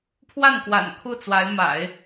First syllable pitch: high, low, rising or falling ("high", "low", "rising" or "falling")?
falling